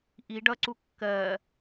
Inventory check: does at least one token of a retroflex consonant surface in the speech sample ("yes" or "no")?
yes